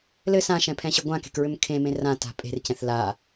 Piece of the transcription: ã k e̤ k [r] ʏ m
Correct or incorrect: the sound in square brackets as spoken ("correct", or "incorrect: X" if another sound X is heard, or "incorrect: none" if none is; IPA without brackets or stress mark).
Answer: incorrect: ɹ